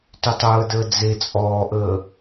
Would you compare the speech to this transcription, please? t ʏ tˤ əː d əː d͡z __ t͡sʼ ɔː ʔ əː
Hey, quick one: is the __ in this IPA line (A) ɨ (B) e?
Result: B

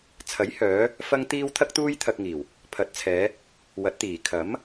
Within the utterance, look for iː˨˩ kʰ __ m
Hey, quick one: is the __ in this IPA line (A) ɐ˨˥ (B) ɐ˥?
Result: A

